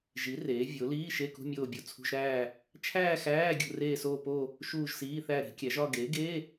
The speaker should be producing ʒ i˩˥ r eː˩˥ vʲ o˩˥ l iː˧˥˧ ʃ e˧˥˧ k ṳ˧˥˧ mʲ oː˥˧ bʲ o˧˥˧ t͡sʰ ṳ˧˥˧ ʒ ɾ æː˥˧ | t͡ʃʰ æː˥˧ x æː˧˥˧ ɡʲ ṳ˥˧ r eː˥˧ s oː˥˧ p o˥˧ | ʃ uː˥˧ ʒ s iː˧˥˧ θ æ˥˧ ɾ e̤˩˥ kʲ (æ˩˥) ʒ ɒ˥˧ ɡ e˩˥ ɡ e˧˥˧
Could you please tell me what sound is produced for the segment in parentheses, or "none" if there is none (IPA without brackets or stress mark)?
æ˩˥